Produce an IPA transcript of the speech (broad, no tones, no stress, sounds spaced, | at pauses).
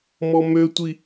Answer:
m ɔ m ø tʷ i